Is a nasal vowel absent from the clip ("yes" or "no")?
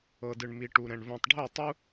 no